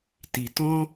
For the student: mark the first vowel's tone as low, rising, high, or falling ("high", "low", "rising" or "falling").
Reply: low